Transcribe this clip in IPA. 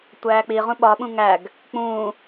tʷ æː k͡p i ʁ ũ ɓ ɒ ɓ ũ ŋ æ ɡ | k͡p ũː

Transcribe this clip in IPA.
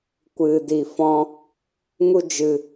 kʷ ɨ˧ d i˧ f ɔ̃˦ | ŋ u˦ d͡ʒ ɨ˧

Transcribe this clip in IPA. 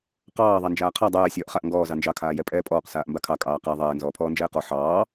q ɑː ðˤ a n d͡ʒ aː qʰ a dˤ ɛː sʲ ɔː ʔ χ a ʔ ŋ ɡ ɔː z ɑ n d͡ʒ ɑ kʰ aː j ɛ pʼ ɛː pʼ ɔː q s aː ʔ m b a kʰ ɑ kʼ ɑː q æ ðˤ ɛː n z ɔː pʰ ɔː n d͡ʒ ɛː q ɔ ħ ɑː

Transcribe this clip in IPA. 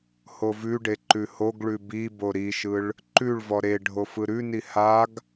h o v ʉ ɖ e ǃ ʉ h o ɡ ɭ ʉ b i b o ɾ i ʃ ɯ ɭ | ǃ ʉ ɭ v ɔ ɾ e ɖʱ o f ɯ ɾ ʉ n i h a ɡ

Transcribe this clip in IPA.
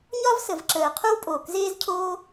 ɲ ɒ˥ v s ə˩ v ǁ əː˩ qʰ o˥ w pʼ oː˩ k z eː˥ z cʰ oː˥

